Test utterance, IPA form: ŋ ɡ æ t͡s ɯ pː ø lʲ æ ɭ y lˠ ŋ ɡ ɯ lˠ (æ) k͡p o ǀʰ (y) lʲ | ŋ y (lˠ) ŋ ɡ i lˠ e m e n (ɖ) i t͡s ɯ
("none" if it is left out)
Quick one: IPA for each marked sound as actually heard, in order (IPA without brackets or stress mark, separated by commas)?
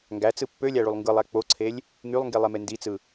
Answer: æ, e, lˠ, d